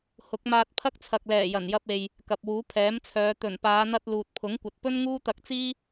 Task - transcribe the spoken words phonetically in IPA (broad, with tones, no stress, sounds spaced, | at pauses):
h ʊ˨˥ k̚ m aː˧ t̚ pʰ ɐ˥ k̚ t͡sʰ ɐ˨ k̚ l ɛː˨˩ j ɐ˨˩ n j ɐ˧ p̚ e˨ j | k ɐ˨ p̚ w uː˨˥ pʰ ɛː˨˥ m t͡sʰ œː˨˧ t̪ ɵ˨˩ n p aː˨˧ n̪ ɐ˧ t̚ l uː˨ t̚ pʰ ʊ˨˥ ŋ kʷ ɐ˨ t̚ p ɵ˥ n ŋ uː˥ t̪ ɐ˧ k̚ t͡s iː˥